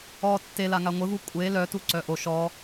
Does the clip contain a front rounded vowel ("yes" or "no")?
yes